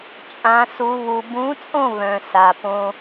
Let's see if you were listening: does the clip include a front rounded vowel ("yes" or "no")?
yes